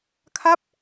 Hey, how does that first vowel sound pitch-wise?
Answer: falling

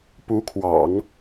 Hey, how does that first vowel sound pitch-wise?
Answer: rising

